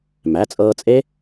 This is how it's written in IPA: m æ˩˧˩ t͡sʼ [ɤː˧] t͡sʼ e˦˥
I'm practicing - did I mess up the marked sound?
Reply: no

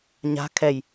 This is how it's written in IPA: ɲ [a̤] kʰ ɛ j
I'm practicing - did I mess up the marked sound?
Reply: no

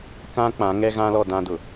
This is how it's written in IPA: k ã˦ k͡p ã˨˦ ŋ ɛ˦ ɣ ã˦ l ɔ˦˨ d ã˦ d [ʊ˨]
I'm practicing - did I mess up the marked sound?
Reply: no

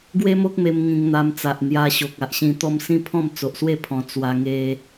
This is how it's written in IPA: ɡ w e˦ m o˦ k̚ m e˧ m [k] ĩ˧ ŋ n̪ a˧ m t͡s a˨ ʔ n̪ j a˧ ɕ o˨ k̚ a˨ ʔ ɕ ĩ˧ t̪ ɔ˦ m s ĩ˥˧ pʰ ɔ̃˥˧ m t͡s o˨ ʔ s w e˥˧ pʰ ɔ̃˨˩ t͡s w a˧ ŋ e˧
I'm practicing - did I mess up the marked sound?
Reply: yes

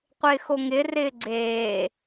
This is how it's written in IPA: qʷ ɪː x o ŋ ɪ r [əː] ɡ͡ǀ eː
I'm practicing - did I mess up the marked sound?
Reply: yes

